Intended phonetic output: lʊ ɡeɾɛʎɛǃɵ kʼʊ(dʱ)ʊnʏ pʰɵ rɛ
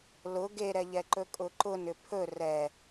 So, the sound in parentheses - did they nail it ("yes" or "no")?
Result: no